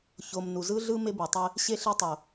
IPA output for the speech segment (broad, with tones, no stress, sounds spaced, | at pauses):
ç o˨ m n u˨ z ɯ˦ ɮ ɯ˦ m e˦ b e˨ tˤ e˦ | ɕ e˦ ɬ e˦ tˤ o˨